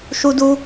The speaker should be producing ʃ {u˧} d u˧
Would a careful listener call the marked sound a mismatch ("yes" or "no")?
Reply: no